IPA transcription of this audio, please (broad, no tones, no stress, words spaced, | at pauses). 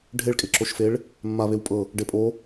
ɖʱeɭkʼeǁoʃfeɭ | mːa βewpʼɤ | ɖepʼo